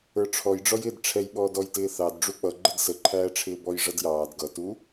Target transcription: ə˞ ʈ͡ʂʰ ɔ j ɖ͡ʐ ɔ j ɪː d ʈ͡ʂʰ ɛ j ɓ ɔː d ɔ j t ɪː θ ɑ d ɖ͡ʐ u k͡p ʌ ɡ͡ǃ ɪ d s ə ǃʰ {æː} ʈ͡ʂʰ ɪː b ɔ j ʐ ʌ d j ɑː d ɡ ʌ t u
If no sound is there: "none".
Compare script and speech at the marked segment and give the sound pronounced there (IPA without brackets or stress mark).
æː